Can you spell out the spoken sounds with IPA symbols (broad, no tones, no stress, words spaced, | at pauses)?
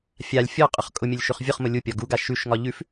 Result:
fʲalʲ fʲɔqʼʊχ kʼʊmʲʊlʲ ʃʉχvʲʊχmʊ lʲupʲɒ ɡuɡa ʃʉʃŋɒ ʎʉf